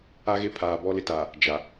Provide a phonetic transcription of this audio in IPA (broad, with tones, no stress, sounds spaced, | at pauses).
a˦ ɣ e˦ pʰ aː˨ b ɔ˦ l ɪ˦ t a˨ | d͡ʒ a˨